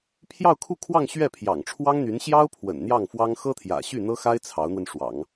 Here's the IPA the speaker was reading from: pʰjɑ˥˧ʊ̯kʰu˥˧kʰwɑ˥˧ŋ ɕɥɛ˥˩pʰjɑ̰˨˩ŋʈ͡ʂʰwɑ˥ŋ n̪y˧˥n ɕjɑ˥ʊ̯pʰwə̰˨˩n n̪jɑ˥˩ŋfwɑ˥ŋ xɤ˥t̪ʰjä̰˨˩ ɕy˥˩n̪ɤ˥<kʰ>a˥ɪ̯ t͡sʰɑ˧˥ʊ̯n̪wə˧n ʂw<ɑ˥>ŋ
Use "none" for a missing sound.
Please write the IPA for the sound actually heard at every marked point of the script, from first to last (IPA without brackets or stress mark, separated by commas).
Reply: x, ɑ̰˨˩˦